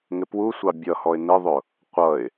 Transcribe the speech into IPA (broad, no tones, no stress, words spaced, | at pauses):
ŋɪpwusʷɑ bʲʌhɔɪ̯ nɪðˤʊ | qʷʌɪ̯